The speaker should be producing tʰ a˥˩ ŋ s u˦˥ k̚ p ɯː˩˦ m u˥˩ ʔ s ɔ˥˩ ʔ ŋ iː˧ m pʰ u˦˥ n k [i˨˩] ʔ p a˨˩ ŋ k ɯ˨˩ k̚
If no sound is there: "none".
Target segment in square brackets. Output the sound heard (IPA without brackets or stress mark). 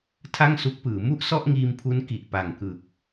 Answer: i˨˩